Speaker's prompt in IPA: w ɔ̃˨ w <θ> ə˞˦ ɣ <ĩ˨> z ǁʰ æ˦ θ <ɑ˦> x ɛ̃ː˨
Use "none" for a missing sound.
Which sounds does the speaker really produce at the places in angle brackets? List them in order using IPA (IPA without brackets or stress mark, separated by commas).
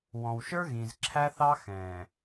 ʃ, ĩ˨, ɑ˦